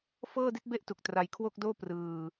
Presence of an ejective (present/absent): absent